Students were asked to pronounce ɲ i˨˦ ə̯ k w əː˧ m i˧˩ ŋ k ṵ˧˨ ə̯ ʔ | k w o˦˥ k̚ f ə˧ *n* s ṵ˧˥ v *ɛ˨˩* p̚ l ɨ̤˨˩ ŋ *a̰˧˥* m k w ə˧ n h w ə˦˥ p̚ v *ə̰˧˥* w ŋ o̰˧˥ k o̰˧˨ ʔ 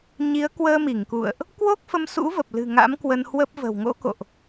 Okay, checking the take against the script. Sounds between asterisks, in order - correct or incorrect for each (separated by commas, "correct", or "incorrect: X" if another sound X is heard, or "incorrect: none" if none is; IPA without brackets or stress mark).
incorrect: m, incorrect: ə˨˩, correct, incorrect: ə̤˨˩